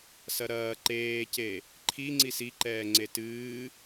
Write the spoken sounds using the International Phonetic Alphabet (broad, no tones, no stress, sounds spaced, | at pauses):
s ɐ ɾ ɐː ǃ eː c e | ǃʰ i ŋ͡ǀ i s i ǃ ɛː ŋ͡ǀ e t ɨː